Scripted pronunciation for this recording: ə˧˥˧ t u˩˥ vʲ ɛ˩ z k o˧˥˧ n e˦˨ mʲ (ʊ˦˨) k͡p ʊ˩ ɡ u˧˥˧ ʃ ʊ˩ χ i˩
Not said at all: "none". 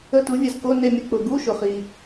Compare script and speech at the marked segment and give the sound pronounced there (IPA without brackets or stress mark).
ə˦˨